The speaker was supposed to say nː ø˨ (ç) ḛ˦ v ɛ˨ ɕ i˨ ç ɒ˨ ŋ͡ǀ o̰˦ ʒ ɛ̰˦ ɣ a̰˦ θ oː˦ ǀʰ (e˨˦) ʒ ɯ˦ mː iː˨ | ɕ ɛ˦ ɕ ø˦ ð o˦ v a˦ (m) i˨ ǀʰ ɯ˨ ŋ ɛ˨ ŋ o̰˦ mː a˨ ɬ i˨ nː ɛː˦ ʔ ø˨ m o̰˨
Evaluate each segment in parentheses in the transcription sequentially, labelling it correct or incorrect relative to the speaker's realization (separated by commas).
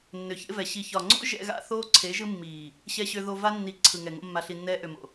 correct, correct, incorrect